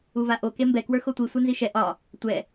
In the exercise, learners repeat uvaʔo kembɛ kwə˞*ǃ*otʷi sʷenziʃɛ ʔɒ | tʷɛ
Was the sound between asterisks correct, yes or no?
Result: no